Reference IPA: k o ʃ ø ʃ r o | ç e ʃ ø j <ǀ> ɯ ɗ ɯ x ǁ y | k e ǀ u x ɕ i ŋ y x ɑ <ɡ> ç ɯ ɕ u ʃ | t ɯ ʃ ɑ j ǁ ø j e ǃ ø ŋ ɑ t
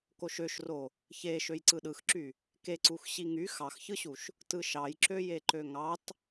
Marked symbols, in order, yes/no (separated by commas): yes, no